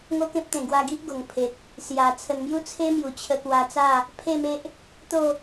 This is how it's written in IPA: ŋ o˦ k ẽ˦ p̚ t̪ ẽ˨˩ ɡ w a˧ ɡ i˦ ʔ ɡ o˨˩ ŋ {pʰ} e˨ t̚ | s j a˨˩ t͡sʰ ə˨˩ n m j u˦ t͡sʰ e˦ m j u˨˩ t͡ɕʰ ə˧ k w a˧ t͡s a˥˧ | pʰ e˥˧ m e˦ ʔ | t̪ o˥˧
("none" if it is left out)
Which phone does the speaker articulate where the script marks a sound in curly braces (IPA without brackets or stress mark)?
pʰ